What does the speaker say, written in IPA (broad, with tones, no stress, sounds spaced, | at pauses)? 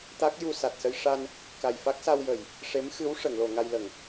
t̪ a˦˥ k̚ j u˧ s a˨˩ t̚ s ə˧ j ʂ a˧ n | k a˨˩ j f a˦˥ k̚ s a˧ w j ə˨˩˨ j | ʂ e˧˥ m x ɨ˧˥ w ʂ ə˨˩˨ ŋ l o˨˩˨ ŋ a˧ j l ə˨˩˨ ŋ